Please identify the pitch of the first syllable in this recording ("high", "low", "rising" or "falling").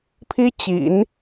high